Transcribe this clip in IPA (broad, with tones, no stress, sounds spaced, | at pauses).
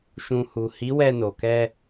ʃ ũ˨ h u˨ h i˨˦ w ɛ˧ n o˨ k ɛ˧